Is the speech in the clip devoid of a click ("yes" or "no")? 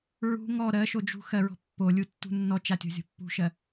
yes